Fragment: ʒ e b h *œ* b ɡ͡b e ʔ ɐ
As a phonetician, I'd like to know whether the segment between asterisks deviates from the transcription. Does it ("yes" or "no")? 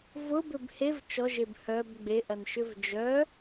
no